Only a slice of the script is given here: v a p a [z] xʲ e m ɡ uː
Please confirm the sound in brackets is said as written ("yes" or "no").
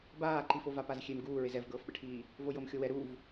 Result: yes